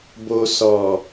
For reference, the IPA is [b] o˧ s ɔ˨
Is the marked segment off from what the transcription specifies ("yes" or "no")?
no